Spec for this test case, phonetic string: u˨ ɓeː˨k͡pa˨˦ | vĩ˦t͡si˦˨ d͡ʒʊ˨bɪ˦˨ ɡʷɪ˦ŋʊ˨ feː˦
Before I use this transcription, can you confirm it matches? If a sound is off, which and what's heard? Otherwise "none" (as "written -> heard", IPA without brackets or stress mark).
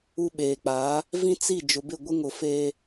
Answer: none